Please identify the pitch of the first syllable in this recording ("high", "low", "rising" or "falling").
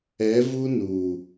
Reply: rising